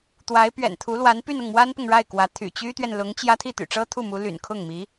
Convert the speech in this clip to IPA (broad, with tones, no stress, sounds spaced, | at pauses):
t̪ w a˧˥ ɪ̯ p ɥ ɛ̰˨˩ n t̪ʰ u˧˥ l w a˧˥ n p y˥˧ n ʊ˥˩ ŋ m w a˥ n p ʊ˨ ŋ ɻ a˥˩ ɪ̯ k w ä˧˥ t̪ʰ y̰˨˩ t͡ɕ y˥ t̪ ɥ ɛ˨ n l ʊ˧˥ ŋ t͡ɕ j ä˥ t̪ʰ i˥˩ t̪ y̰˨˩ ʈ͡ʂ ɤ˥ t̪ʰ u˥˩ m u˧˥ l y̰˨˩ n kʰ ʊ˥˩ ŋ m i˧˥